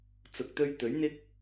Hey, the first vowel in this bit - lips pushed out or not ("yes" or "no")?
yes